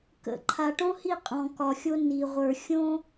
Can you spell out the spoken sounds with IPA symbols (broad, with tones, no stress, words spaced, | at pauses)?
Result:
kə̰˨ ǃʰa˨ʈõ˦hi˦˨ qʼɔ̃˨kɒ˨xʲo˦ ni˨ʁʷə˞˨ xʲõ˦